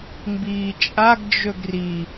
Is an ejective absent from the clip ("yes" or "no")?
no